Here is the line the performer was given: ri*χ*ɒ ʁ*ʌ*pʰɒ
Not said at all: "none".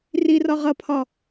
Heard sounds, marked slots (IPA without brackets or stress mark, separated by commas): r, ʌ